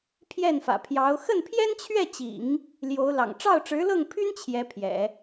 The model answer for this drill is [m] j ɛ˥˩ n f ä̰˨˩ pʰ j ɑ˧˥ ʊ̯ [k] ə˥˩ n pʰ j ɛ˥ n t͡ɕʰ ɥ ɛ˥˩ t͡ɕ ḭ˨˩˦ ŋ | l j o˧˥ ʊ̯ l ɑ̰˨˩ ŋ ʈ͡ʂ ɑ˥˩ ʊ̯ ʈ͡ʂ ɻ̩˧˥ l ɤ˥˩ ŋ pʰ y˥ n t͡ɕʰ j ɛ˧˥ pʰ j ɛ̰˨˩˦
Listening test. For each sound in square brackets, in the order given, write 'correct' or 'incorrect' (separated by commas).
incorrect, incorrect